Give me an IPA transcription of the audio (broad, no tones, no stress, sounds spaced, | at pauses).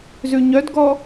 z ʉ ɲ œ d ɡ ɔ